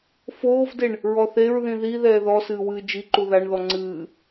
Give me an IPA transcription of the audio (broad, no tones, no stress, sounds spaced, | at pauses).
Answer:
f oː v d e ɳ | ɹ ɔ θ e ɹ ð ĩ ð i ð ɛː ð ɔ s ɨː w ɨː d͡ʒ i ǃ u ð a ɳ ð ɔ ŋ͡ǀ ɨː